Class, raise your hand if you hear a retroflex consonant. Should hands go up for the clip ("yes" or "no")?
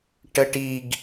yes